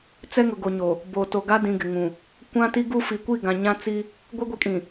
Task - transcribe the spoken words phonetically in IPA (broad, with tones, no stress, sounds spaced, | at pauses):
t͡s ɛ˦ ŋ ʊ˨ ɡ o˨ ɲ oː˨ | b o˨ t o˨ ɡ a˦ d ĩ˨ ɡ ɪ˨ ŋ ũ˨ | kʷ ã˦ t i˦ ɡ u˦ f i˨˦ kʷ i˦˨ ɡ ã˨ ɲ ã˦ t͡s i˦ | ɡʷ ɪ˦ ɡʷ i˨˦ kʼ ĩ˨